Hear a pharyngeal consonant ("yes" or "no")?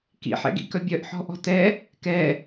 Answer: yes